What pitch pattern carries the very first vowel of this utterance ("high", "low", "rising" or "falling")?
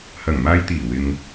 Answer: low